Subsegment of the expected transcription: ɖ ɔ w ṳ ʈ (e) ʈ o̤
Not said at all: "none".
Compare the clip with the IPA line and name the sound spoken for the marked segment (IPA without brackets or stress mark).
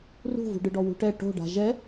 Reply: ɛ